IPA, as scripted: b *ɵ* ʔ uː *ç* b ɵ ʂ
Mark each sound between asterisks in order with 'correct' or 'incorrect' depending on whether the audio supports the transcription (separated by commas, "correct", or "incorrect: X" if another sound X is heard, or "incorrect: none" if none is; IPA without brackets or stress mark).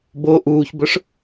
incorrect: o, correct